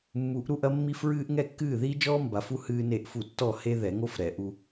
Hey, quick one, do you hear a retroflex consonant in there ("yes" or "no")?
no